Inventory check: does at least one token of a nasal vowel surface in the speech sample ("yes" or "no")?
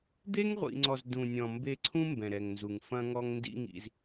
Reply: yes